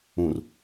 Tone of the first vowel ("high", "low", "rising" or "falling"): low